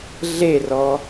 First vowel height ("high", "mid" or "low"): mid